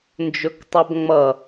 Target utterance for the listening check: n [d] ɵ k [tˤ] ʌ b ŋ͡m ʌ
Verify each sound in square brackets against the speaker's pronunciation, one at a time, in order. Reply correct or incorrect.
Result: incorrect: d͡ʒ, correct

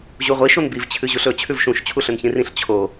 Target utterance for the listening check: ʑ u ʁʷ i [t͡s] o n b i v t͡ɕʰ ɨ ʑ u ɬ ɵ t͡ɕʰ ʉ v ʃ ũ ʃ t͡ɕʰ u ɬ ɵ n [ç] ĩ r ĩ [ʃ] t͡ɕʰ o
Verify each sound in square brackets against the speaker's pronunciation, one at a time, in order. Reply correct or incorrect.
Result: incorrect: ʃ, correct, incorrect: ɬ

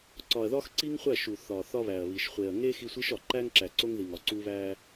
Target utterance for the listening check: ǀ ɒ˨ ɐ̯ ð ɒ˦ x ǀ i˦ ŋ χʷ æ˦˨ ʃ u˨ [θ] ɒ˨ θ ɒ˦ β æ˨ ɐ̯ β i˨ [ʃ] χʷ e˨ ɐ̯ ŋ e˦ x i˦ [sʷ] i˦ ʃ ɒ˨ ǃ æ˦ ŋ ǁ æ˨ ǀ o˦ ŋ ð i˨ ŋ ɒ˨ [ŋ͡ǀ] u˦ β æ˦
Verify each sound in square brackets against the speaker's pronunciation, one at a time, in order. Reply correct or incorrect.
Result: correct, correct, correct, incorrect: ǀ

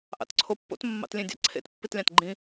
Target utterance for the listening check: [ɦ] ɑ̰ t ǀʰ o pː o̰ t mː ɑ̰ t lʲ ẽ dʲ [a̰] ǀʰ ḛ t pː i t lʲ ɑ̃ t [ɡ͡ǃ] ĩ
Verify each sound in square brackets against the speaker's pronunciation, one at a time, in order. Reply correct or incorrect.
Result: incorrect: ʔ, incorrect: ɑ̰, correct

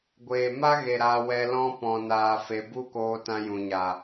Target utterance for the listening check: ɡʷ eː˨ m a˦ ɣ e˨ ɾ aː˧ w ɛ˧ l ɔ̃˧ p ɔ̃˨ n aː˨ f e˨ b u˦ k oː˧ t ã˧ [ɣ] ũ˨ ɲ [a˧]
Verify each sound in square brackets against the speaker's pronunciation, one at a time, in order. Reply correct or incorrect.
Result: incorrect: j, incorrect: a˨

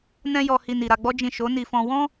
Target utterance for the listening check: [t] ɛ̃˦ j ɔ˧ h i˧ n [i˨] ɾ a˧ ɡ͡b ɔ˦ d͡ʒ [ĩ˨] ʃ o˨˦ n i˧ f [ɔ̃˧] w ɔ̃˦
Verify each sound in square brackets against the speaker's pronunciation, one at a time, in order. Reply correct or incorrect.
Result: incorrect: n, correct, incorrect: ĩ˦˨, correct

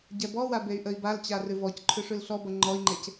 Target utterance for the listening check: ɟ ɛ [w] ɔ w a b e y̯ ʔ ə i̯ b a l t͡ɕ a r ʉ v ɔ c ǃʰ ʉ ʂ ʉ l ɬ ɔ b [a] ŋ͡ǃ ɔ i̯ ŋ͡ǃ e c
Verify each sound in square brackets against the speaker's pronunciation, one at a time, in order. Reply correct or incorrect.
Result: incorrect: b, incorrect: ʌ

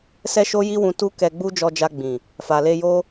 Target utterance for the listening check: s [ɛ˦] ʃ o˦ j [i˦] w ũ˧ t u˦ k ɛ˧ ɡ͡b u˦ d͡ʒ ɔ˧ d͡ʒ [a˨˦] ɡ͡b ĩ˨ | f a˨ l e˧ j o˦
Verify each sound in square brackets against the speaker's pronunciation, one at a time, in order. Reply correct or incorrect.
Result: correct, correct, incorrect: a˧

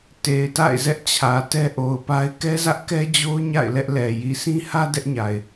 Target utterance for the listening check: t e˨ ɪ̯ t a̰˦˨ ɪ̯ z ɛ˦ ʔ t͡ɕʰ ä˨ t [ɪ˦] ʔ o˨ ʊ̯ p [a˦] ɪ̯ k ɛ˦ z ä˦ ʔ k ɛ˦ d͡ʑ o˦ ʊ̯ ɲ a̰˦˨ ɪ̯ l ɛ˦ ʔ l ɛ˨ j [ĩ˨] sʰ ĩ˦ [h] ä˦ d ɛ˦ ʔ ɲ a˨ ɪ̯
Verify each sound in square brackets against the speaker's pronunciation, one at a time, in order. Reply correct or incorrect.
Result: incorrect: ɛ˦, correct, incorrect: i˨, correct

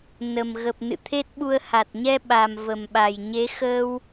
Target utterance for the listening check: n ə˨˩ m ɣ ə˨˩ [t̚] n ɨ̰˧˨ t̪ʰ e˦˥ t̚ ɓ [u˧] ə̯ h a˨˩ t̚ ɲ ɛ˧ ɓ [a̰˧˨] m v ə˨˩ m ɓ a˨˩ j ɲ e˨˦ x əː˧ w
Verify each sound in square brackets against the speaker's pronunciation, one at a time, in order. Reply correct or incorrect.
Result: incorrect: p̚, correct, incorrect: a˨˩

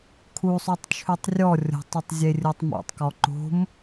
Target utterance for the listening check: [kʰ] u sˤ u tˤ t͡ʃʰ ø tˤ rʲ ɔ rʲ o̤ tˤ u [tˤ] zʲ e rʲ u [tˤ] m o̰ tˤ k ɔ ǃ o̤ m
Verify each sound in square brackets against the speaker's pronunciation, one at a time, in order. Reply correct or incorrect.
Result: correct, correct, correct

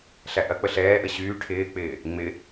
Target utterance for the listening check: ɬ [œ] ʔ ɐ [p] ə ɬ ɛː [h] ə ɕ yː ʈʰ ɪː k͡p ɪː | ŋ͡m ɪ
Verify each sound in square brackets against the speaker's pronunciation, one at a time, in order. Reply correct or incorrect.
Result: incorrect: æ, incorrect: k͡p, incorrect: ʔ

